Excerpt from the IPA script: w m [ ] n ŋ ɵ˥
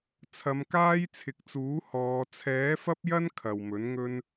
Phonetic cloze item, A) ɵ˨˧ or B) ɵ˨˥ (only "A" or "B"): B